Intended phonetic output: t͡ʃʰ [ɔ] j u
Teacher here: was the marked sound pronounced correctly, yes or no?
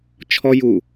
yes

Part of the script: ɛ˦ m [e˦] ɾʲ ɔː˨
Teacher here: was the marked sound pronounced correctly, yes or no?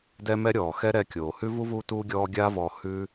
no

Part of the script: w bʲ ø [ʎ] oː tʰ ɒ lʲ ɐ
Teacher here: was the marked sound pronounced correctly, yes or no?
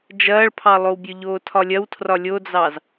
yes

